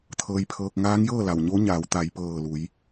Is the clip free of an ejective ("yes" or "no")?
yes